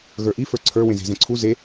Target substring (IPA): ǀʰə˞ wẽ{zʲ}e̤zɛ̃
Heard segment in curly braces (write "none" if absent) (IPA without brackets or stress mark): z